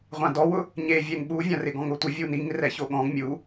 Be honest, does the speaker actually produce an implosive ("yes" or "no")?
yes